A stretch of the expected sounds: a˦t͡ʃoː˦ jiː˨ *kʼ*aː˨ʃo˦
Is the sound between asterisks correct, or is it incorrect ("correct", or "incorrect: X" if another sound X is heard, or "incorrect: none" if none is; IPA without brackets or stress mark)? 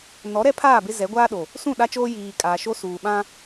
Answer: correct